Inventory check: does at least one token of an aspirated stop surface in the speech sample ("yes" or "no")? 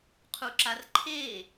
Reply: yes